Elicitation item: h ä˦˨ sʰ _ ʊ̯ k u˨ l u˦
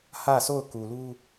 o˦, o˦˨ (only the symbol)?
o˦˨